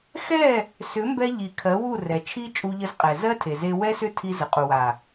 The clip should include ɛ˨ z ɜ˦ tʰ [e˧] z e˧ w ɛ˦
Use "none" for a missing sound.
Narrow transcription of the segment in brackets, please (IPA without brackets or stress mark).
e˨